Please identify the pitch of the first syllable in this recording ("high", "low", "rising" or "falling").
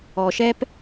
low